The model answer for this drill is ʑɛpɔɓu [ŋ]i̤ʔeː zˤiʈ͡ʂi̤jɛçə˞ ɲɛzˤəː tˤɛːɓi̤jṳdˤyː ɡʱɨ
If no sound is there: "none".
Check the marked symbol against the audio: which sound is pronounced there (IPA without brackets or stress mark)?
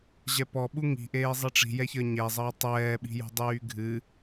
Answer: ŋ